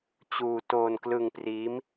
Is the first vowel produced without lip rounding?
no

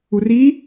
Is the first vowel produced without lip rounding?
no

